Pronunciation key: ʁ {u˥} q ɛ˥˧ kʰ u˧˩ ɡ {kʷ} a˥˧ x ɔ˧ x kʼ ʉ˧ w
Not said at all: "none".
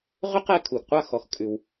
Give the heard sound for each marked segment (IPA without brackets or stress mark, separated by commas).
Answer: ʏ˥, qʷ